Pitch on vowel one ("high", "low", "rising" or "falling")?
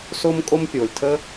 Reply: high